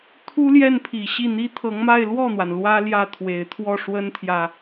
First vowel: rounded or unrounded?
rounded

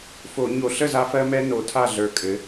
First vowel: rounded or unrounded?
rounded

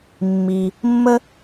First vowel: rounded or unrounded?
unrounded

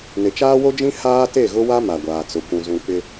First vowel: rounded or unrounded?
unrounded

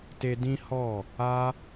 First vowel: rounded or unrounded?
unrounded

